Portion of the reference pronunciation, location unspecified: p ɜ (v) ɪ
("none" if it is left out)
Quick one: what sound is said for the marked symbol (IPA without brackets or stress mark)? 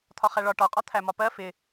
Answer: f